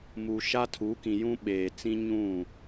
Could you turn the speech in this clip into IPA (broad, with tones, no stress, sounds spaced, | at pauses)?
m u˨ ʃ a˦ tʰ u˨˦ k ĩ˨ j ũ˦ ɓ eː˨ t͡s ĩ˦ ɲ ũ˦˨